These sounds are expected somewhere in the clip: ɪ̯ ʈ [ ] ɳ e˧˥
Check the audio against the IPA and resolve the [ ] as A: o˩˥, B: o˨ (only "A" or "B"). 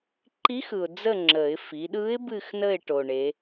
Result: B